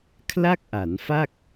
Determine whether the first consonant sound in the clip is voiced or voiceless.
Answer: voiceless